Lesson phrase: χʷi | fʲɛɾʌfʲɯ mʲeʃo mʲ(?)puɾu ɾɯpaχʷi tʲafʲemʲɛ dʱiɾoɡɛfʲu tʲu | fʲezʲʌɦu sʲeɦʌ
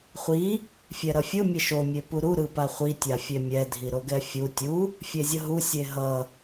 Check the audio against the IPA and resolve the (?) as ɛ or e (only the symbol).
e